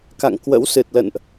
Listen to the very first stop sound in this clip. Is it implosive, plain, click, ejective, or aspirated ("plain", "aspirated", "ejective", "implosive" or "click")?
plain